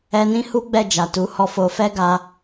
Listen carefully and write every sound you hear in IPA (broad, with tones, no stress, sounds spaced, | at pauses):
ɛ˧ n ĩ˦ h u˦ ɡ͡b ɛ˦˨ d͡ʒ a˨ t u˨˦ h ɔ˧ f o˧ f ɛ˦ ɡ a˧